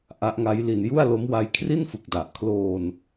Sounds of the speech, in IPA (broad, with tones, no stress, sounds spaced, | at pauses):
ʔ a˦˥ ʔ ŋ a˦˥ j l i˧ n j u˥˩ a̯ l o˦˥ m w a˦˥ j kʰ r i˥˩ n f ɯ˨˩ k̚ d a˨˩ ʔ kʰ l oː˧ n